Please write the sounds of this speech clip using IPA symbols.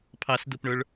pʰ ɑ s d ʊ p ɳ ə˞ ɭ

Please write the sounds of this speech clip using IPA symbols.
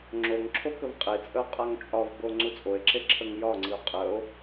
ŋ͡ǁ o ŋ ǁʰ o k ə v qʼ e t͡sʼ ə o̯ qʼ a ŋ t͡ʃʼ ɒ v b o ŋ͡ǀ u t͡sʼ o e̯ ǁ e ǁʰ ə ŋ j ɒ ŋ͡ǀ i o̯ qʼ ə o̯

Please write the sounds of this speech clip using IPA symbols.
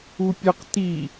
u pʲ ə q t i

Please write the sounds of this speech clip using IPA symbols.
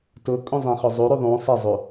t ʊ kʼ ũ zˤ ẽ χ o zˤ u ɾ u ðˤ ũ sˤ e zˤ u

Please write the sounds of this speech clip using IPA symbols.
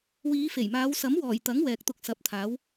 w iː˨˧ f e˨˩ j m aː˨˧ w s ɐ˨˥ m w ɔː˨˩ j t̪ ɐ˨˥ ŋ w ɛː˧ k̚ t̪ ʊ˥ k̚ s ɐ˨˥ p̚ t̪ʰ aː˨˥ w

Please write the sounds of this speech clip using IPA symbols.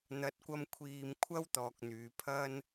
n̪ ɐ˨˥ t̚ kʷ ɐ˧ m kʷʰ iː˨ m kʷʰ ɐ˥ w t̪ ɔː˧ k̚ n̪ yː˨˧ pʰ ɐ˥ n

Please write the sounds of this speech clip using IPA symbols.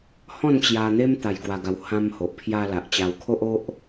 h ɔ̃˥˧ n t͡ɕ j a˧ n̪ e˦ m t̪ a˧ j ɡ w a˧ ɡ a˧ w h ã˧ m h o˨ ʔ pʰ j a˧ l a˨ ʔ t͡ɕ a˧ w kʰ o˦ ʔ o˦ ʔ

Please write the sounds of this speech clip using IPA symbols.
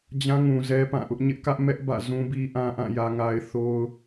d͡ʑ ã˦ ŋ ũ˨ z ɛ˦ p ã˦˨ ʔ ʊ˦ ʔ ɲ ɪ˦ ʔ k ä˦ ʔ m ɛ˦ ʔ b ä̰˦˨ z ũ˦ b i˦ ʔ ã˦ ʔ ã˦˨ j ä˨ ŋ a˨ ɪ̯ θ o˦ ʊ̯

